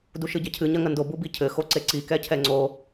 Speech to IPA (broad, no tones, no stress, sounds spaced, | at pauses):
d u ʃ ɨ ɟ ɐ cʰ ɨ ɲ ɐ ŋ ɐ n d o b u b i cʰ ɘ x o ǀ e ǀ i k ɛ cʰ ɛ ŋ͡ǀ o